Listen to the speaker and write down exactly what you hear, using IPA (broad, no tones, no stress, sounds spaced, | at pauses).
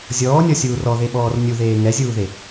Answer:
zʲ ɔː nʲ ɔ sʲ uː r ɔ ð e ɓ ɔː r nʲ u ð eː ŋ ɛ zʲ uː ð e